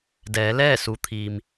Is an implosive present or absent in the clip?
absent